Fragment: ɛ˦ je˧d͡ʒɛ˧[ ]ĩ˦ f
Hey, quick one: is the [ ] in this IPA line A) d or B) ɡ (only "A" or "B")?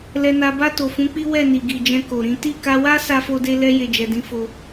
A